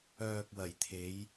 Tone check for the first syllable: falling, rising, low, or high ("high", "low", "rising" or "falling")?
low